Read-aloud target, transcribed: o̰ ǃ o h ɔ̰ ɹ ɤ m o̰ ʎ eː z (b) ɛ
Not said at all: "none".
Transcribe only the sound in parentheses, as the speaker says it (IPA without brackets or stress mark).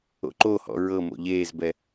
b